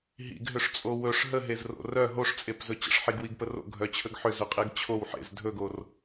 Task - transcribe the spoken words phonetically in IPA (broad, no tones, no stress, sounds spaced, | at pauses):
ɦ ḭ ɡ ɦ ʏ ʂ t͡sʼ o w ɵ ʂ ɦ ə ɦ e z r o̰ r œ ɦ o ʂ t͡sʼ e p z ɵ t͡ɕ ə̰ ʂ ħ i ɡ w i ɡ p ə r o̰ ɡʱ œ t͡ɕʰ ə ɡ ħ ʏ z ʏ qʼ e ɡ t͡ɕʰ o w ħ ḛ z dʱ ɵ ɡ o r